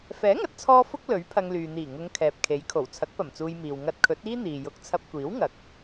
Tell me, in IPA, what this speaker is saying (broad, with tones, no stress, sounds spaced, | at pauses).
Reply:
f ɛː˨˥ ŋ ɐ˨˥ t̚ t͡sʰ ɔː˧ f ʊ˥ k̚ l ɵ˨˥ ɥ pʰ ɐ˧ ŋ l yː˨ n̪ iː˨˩ ŋ ʊ˨˧ ŋ kʰ ɛː˨ p̚ kʰ e˨˥ j kʰ o˨˩ w t͡sʰ ɐ˨˥ k̚ p ɐ˨˩ m t͡s uː˧ j m iː˨ w ŋ ɐ˧ t̚ kʰ ɵ˨˥ t̚ iː˥ n̪ iː˨ j ʊ˨˥ k̚ t͡sʰ ɐ˧ p̚ kʷ iː˨˥ w ŋ ɐ˨ k̚